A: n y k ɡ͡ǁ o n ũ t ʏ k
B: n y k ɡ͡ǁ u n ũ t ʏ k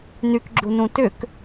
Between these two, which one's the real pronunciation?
B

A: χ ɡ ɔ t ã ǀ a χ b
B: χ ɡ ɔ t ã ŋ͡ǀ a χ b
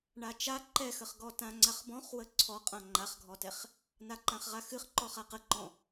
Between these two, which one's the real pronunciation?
B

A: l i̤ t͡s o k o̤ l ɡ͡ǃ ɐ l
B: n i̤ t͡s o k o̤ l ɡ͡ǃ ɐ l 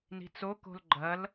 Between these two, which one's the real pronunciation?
B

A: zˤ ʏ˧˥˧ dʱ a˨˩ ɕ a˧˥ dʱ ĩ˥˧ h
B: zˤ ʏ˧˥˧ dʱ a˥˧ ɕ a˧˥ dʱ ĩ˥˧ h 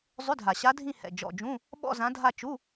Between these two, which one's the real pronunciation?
A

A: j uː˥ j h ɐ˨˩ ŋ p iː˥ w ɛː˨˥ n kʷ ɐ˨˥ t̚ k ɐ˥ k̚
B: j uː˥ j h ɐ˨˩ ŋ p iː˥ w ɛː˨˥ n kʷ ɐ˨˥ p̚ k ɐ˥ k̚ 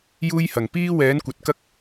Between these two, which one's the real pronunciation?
A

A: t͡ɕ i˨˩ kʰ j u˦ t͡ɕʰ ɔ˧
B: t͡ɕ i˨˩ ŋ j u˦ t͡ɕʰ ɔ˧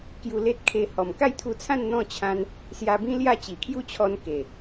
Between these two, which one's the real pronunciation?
A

